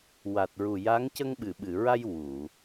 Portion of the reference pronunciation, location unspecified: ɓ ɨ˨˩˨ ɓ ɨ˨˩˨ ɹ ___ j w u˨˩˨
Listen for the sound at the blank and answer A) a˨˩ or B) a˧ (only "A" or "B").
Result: B